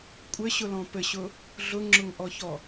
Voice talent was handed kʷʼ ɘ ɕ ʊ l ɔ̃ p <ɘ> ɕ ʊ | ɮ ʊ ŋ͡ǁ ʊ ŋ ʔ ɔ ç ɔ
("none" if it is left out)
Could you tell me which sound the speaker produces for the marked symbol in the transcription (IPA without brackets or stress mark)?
ɘ